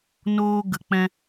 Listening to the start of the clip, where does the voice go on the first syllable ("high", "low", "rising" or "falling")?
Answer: high